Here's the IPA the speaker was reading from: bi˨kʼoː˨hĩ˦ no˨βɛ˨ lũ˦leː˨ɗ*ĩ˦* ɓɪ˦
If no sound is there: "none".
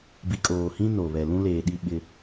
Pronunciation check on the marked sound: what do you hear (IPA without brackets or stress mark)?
i˦